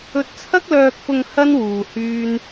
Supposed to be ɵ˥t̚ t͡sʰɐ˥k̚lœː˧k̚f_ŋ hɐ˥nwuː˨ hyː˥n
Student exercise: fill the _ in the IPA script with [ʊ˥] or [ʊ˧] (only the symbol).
ʊ˧